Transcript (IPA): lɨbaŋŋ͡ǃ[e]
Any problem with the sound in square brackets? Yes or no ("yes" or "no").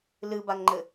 yes